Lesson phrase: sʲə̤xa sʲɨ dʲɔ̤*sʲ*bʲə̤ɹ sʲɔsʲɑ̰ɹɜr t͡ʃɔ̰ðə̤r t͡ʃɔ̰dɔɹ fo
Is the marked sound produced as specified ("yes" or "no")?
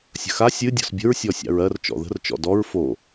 no